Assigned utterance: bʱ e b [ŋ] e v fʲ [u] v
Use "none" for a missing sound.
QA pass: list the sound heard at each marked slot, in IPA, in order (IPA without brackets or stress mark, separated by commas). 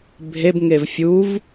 ŋ, u